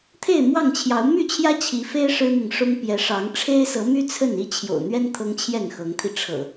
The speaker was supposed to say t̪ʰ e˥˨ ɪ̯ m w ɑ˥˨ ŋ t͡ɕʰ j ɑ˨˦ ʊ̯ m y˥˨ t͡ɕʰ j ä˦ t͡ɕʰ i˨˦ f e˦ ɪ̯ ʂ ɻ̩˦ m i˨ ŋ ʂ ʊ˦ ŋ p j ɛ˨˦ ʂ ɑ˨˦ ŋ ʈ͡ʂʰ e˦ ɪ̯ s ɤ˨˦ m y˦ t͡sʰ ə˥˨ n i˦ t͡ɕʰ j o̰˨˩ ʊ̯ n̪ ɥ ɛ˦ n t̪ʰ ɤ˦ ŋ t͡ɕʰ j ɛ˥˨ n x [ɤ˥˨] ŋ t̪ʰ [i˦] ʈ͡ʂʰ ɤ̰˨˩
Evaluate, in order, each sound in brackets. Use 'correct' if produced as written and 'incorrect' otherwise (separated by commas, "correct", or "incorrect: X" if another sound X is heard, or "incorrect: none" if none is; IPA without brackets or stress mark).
incorrect: ɤ˨˦, incorrect: i˧